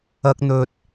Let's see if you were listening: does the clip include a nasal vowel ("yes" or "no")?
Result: no